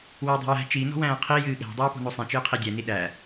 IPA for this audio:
w æ dˤ ɛ̤ j æ̤ t͡ʃ i n ɔ̤ w æ̃ː qʰ i j ɨː ɠ æ̤ dˤ ɨː p ɔ̤ n o sˤ ĩ t͡ʃ ɨː qʰ i dʲ ɛ n i ɗ æ

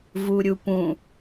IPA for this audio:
v u ɾʲ u p ũ

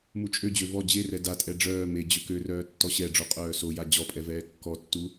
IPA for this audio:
m u t͡ʃʼ ø d͡ʑ ø v ɔ d͡ʑ e r ɛ d a tʼ ɛ ɖ͡ʐ œː m e d͡ʑ ø k ø r œː tː ɔ ɕ ɛ ɖ͡ʐ o qʼ œː s o j a d͡ʑ ɔ pʼ ɛ v ɛː kː ɔ tː u

